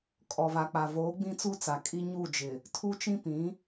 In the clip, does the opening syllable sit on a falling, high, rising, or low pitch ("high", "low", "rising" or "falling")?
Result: low